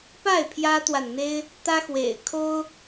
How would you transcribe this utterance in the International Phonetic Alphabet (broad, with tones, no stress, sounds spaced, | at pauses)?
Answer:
p a˥˩ ɪ̯ pʰ j ä˥ t̪ w a˨ n n̪ e˥ ɪ̯ | t̪ ä˥ x w ḛ˨˩ ɪ̯ kʰ o˥ ʊ̯